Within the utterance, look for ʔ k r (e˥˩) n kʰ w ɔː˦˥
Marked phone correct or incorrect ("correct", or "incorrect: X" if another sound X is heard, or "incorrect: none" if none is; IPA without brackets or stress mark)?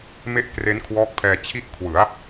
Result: incorrect: e˦˥